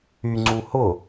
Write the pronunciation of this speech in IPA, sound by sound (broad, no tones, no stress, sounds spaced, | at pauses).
y ŋ͡ǀ u h ʊ